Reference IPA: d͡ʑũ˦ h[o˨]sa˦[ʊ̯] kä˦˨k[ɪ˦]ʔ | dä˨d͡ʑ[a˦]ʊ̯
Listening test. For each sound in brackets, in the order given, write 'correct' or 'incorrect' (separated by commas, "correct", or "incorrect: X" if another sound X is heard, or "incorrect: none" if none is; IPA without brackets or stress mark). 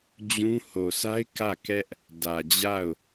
correct, incorrect: ɪ̯, incorrect: ɛ˦, incorrect: a˦˨